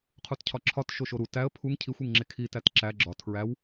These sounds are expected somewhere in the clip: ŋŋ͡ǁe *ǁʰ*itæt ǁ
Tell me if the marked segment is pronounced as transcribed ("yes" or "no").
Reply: no